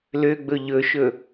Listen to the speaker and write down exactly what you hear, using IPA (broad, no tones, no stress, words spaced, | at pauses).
løɡ͡bɵ ʎɵʃɵ